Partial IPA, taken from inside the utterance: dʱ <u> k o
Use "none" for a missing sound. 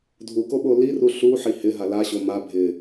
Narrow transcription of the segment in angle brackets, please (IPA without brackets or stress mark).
u